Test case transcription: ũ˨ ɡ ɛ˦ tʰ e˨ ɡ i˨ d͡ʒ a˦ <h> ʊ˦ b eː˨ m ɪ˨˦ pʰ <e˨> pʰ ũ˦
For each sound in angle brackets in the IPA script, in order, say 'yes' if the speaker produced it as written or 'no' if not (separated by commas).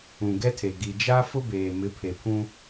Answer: no, yes